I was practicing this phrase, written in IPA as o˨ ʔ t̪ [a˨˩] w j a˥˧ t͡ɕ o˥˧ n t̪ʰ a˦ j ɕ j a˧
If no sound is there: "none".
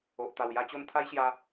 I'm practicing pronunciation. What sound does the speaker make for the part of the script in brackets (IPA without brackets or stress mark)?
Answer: a˨˩